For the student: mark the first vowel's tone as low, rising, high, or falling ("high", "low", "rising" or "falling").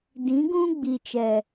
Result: rising